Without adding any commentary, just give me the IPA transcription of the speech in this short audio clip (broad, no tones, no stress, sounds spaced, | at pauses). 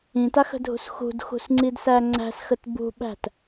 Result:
ĩ t a x ə̤ dʱ ṳ s x ṳ d x ṳ s ŋ͡ǀ i d s æ ŋ͡ǀ æ̤ s x ə t b ṳ ɓ æ̤ t